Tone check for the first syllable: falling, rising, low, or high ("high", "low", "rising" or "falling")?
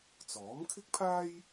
rising